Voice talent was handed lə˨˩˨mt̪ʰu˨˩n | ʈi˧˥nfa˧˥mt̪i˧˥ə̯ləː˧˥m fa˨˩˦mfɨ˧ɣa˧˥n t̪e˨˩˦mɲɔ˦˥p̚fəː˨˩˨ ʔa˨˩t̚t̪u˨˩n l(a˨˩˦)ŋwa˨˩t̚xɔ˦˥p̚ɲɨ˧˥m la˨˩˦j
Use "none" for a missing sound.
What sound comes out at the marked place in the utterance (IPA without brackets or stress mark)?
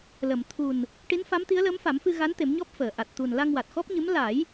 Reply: a˧